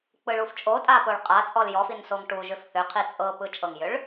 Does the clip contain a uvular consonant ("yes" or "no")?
yes